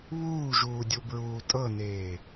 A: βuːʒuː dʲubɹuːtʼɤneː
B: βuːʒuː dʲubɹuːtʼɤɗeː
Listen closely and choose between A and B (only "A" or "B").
A